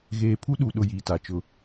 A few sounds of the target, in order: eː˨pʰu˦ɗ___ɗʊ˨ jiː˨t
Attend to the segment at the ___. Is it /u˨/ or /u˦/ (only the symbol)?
u˨